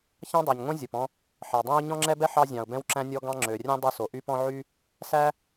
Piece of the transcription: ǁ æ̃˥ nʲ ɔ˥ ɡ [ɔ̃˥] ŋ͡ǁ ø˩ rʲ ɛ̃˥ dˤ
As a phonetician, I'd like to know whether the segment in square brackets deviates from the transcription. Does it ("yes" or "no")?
yes